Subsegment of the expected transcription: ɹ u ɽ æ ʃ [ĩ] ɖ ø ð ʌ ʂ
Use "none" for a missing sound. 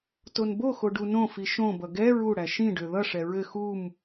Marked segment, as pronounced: ĩ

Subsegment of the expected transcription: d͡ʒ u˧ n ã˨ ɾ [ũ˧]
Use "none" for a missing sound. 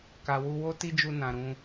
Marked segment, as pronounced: ũ˧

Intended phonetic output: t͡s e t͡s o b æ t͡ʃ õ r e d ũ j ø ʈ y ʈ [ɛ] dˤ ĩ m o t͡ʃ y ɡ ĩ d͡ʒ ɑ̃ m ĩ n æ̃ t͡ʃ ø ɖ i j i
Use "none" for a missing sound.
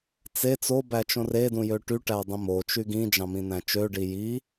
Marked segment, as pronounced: æ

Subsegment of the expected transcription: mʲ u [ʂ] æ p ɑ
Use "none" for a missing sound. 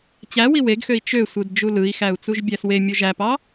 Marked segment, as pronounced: ʒ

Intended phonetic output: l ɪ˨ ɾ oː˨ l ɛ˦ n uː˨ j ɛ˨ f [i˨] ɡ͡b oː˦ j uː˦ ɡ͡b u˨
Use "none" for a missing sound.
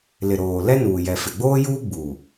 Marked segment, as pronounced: ɪ˨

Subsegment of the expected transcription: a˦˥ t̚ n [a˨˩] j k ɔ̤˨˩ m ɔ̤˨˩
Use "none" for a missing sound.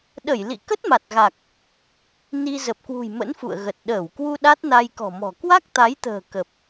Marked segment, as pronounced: a˧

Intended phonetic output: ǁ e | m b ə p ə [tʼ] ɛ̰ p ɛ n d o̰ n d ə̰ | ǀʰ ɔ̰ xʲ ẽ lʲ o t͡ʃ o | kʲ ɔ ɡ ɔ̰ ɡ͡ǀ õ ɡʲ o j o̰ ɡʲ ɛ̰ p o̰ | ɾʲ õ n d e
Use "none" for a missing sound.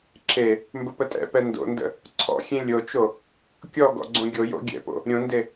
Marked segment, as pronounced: tʼ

